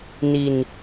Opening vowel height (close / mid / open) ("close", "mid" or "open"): close